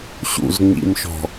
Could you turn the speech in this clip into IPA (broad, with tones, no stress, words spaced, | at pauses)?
ɕṵ˨zŋ͡mḭ˨mʃɔ̤˨